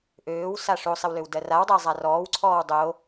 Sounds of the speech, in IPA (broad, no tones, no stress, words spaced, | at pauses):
ʔøːwsa ʂosˤɪwløw dɜrawdˤɜ zˤarɔːwǀʰɔːw dˤo